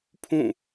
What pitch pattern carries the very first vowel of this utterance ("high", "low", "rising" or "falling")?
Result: falling